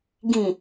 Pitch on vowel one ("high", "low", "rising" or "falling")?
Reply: low